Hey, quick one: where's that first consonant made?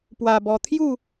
lips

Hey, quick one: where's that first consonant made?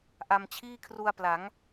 throat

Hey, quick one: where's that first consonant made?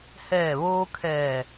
throat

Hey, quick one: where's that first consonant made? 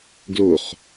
velum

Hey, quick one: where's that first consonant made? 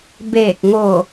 lips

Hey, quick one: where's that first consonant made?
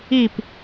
lips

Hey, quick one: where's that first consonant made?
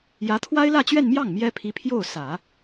palate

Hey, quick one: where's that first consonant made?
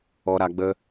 tongue tip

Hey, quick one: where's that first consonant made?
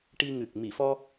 retroflex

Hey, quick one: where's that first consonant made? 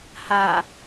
throat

